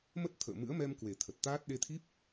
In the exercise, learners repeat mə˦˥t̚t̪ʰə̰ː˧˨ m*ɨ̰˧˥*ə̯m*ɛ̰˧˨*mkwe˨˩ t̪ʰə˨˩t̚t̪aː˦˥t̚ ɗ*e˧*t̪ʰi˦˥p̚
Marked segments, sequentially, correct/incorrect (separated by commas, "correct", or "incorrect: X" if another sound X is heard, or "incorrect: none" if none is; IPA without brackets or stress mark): correct, incorrect: ɛ˧, correct